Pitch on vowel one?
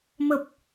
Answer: low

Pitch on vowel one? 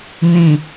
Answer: low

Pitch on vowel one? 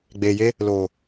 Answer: low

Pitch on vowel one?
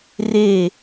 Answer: falling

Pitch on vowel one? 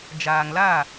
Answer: low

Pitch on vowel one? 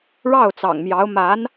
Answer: falling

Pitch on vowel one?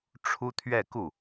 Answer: high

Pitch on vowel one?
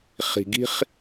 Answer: low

